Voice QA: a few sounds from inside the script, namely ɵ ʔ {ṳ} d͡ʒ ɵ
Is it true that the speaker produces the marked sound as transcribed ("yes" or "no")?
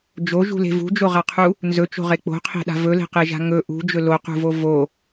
yes